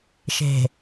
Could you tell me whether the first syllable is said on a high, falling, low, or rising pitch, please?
low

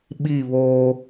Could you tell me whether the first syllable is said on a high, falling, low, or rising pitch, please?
falling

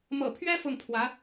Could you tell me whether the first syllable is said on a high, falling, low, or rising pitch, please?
low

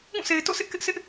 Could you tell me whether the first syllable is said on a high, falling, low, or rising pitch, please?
falling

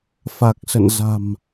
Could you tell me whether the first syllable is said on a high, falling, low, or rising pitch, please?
low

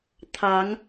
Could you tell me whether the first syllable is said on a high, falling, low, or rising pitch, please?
rising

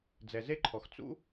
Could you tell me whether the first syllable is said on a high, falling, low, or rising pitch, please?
low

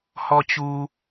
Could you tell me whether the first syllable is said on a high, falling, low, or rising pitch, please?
high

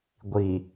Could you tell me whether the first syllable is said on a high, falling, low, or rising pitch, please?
low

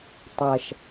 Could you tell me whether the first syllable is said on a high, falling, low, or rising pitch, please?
low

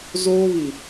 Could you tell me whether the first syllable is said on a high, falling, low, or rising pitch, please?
high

